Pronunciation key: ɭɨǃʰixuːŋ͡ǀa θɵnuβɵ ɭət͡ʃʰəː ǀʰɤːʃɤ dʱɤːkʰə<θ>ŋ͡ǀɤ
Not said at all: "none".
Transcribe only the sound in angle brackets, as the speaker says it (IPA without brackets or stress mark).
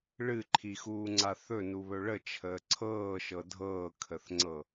θ